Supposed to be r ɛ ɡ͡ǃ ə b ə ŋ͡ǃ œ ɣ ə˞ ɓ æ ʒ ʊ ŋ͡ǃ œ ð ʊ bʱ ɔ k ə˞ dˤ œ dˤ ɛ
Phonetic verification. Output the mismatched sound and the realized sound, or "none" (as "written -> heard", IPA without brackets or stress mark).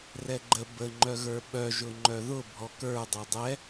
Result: æ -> œ